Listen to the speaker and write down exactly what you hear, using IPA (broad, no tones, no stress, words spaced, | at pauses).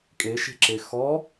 kʼeʃe̤ǁe xɔ